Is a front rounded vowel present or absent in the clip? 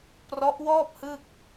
absent